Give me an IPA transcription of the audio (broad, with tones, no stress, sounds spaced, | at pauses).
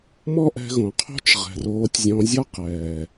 m ɔ˦ ʔ ɛ̤˧ ɣ õ˨ qʰ o̤˦ t͡ʃ ʁ ɛ̤˨ r oː˧ tʲ zʲ ɔ̃˧ zʲ ɔ˦ q ɛː˨